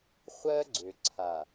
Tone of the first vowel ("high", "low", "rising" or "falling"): high